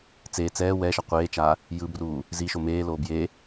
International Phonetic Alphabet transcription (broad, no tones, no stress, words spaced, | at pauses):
t͡seː t͡sɛː wɛ ʃʌqʷeːt͡ʃaː | jɯbruː | ziʃo meːloː bje